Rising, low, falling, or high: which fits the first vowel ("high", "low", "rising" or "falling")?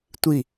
falling